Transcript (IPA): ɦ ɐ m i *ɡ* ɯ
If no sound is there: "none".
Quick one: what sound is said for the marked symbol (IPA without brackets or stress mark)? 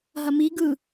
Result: ɡ